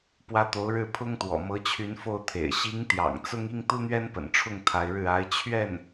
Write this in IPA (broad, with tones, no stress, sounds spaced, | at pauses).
p w ä˧˥ t̪ o˧˥ ʊ̯ ɻ ɻ̩˥˩ pʰ ʊ˥ ŋ t̪ w ɔ̰˨˩ m ɤ˧˥ t͡ɕʰ y˧˥ n f o˥˩ ʊ̯ t̪ʰ ḛ˨˩ ɪ̯ ɕ i˧˥ ŋ t̪ j ɑ̰˨˩ ŋ t͡s ʊ˥ ŋ i˥ ŋ t̪ u˥ n̪ ɥ ɛ˥ n p ə̰˨˩ n ʈ͡ʂʰ ʊ˥˩ ŋ t̪ʰ a˧˥ ɪ̯ ɻ ɻ̩˥˩ a˧˥ ɪ̯ t͡ɕʰ ɥ ɛ˥˩ n